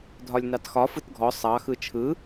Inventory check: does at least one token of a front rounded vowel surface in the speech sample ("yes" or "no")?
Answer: no